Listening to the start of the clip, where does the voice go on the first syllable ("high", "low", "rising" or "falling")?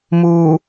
low